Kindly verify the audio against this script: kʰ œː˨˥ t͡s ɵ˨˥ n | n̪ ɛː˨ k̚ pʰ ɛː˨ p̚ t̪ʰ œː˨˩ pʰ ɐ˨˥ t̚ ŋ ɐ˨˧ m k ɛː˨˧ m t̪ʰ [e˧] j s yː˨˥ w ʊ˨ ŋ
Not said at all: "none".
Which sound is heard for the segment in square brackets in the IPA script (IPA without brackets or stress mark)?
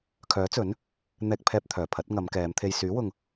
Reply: e˨